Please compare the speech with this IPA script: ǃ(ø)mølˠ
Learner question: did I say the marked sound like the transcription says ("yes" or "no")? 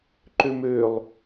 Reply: yes